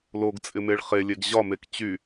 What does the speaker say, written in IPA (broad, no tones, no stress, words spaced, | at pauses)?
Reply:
loɡ t͡sʼɪmeɭχelʲeɡ ʑɒmek t͡ɕy